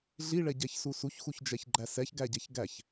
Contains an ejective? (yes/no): no